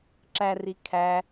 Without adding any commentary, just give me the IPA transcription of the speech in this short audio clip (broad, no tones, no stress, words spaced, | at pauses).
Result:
ǁæri kʰæ